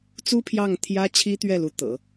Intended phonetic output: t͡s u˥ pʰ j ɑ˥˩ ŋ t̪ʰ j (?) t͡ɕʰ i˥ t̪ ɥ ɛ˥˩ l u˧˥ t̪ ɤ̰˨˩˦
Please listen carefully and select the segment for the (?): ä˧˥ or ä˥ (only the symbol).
ä˥